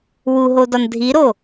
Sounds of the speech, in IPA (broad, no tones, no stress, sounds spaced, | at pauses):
w u ɦ o d ɒ n dʱ i ɾ o